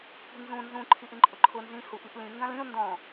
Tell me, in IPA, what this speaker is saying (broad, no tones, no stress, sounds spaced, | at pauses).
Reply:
kʷ i̤ n z ũ n z ũ ǃʰ i ʔ ĩ ǃʼ ʊ ǃʰ ʊ n z ĩ h u ʔ i ʔ l ĩ ŋ ɡ ã l ĩ ʊ̯ n d ɔ̃